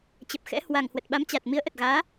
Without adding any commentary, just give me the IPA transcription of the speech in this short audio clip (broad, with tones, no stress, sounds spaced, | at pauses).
t͡ɕ ə˨˩ p̚ x ɛ̰˧˥ h w a˨˩ ŋ h w ə˨˩ t̚ ɓ a˨˦ m t͡ɕ a˨˩ t̚ m i˨˦ ə̯ ʔ ə˨˩ t̚ ɣ aː˨˦